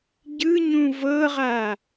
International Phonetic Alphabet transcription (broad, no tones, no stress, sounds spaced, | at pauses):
ɟ ɯ ɲ ũ v ɤ ʁ a